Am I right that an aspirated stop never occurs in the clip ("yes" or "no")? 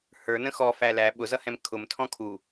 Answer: no